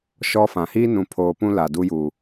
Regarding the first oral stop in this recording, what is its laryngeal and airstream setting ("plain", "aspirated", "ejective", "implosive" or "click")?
aspirated